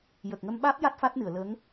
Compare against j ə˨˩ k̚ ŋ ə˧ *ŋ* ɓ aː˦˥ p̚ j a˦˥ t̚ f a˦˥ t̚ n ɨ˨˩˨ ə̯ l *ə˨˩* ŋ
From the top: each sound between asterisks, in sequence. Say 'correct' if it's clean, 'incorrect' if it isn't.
incorrect: m, incorrect: ə˧˥

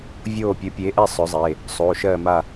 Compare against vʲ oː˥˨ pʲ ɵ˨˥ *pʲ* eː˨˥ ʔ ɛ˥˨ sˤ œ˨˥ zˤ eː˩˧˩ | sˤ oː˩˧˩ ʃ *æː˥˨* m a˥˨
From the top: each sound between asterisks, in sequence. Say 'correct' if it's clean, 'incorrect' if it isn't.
correct, incorrect: ɜː˥˨

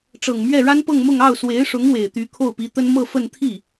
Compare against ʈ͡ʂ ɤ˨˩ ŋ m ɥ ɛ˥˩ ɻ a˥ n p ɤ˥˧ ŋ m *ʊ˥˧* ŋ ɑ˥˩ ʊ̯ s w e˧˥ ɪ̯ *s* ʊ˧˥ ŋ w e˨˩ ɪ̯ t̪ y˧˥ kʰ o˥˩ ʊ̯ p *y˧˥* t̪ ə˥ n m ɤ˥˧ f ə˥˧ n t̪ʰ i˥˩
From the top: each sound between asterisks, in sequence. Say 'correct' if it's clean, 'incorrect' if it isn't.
correct, incorrect: ʂ, incorrect: i˧˥

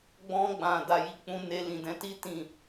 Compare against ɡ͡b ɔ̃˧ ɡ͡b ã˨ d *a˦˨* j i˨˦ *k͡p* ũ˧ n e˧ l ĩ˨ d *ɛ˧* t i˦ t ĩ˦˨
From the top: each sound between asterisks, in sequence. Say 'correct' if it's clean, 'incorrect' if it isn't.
incorrect: a˨, correct, incorrect: ɛ̃˧

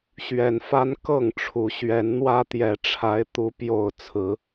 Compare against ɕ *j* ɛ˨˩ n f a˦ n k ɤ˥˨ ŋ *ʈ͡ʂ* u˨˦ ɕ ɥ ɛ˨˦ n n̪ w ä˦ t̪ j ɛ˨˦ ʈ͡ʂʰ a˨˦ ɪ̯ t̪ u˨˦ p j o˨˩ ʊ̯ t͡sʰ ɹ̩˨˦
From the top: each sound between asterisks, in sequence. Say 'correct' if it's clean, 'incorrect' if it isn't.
incorrect: ɥ, incorrect: ʈ͡ʂʰ

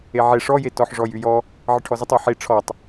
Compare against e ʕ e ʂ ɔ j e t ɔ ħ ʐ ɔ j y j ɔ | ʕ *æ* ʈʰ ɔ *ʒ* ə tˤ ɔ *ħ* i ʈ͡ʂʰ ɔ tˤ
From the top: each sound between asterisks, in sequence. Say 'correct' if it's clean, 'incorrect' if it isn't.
incorrect: ə, incorrect: z, correct

